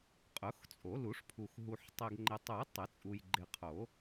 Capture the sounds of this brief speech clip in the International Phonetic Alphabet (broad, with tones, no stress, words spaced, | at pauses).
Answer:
qʼʊ˨˩˦xt͡sʼo˨˩˦lu˨˩˦ʂpʰu˨x ɦu˨ħ tˤɛ˨ɡŋ͡ǃɪ˨tˤu˨˩˦j tˤɪ˨˩˦t͡sʼu˨j ɡ͡ǃɪ˨qʰo˨˩˦